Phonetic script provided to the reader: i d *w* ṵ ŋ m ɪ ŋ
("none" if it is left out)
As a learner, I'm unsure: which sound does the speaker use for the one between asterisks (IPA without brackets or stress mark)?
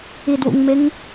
w